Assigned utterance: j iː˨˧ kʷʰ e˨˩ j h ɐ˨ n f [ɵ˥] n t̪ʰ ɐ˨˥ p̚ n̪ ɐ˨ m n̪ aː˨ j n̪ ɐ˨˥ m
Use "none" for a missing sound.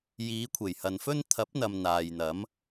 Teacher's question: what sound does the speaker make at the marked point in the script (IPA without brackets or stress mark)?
ɵ˥